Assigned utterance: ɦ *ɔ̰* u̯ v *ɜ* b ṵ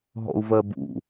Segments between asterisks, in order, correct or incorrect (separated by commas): correct, correct